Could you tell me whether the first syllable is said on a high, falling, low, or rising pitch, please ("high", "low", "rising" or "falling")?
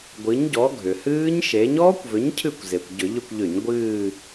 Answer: rising